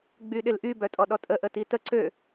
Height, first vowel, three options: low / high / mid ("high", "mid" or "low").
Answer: high